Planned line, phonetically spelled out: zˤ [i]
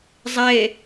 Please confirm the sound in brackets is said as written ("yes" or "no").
no